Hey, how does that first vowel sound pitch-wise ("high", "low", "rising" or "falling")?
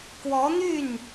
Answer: rising